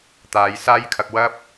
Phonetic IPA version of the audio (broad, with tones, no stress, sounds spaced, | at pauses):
t̪ aː˨˧ j s aː˥ j kʰ ɐ˧ k̚ w ɐ˥ p̚